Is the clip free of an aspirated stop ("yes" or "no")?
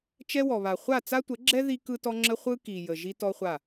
yes